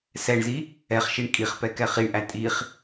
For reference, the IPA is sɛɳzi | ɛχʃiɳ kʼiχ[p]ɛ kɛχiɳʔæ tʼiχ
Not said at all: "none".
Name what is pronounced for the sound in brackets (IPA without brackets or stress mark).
p